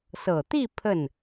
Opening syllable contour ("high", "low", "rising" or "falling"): low